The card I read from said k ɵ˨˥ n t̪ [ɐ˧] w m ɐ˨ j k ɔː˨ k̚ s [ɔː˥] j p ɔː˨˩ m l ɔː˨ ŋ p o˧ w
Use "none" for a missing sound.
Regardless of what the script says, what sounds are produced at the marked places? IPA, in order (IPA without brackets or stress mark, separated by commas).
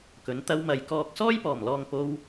ɐ˧, ɔː˥